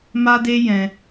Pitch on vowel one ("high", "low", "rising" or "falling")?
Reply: high